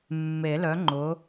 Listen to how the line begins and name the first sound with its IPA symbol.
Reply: mː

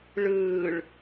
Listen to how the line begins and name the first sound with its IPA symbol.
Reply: ɭ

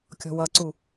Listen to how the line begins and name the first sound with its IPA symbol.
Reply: kʲ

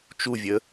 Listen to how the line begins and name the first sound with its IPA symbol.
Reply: t͡ʃ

